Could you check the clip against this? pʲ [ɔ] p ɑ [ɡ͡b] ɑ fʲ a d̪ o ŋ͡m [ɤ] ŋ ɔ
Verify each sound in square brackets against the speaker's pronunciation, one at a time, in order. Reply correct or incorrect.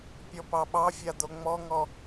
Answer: correct, incorrect, incorrect

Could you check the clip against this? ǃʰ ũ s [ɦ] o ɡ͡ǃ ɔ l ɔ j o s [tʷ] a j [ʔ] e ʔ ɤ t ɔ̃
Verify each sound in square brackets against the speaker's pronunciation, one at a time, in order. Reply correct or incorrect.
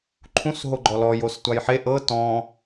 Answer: correct, correct, incorrect

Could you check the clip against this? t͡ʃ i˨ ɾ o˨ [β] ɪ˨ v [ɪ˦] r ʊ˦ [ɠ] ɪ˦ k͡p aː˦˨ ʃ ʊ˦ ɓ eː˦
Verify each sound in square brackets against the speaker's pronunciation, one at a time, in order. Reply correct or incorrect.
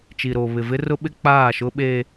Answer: correct, correct, incorrect

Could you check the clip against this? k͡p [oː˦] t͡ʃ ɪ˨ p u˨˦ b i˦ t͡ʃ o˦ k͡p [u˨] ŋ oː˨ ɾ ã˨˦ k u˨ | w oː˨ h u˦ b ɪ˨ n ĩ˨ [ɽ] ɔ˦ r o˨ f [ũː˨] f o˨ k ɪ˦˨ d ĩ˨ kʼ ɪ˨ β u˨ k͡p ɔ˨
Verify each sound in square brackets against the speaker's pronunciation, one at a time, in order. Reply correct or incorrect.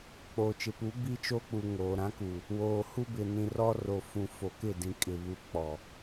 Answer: incorrect, correct, incorrect, incorrect

